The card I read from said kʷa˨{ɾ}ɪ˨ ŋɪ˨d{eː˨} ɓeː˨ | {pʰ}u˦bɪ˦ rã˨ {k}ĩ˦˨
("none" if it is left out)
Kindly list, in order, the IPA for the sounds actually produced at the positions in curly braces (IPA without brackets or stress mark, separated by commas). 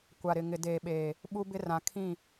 ɾ, eː˨, ɓ, kʰ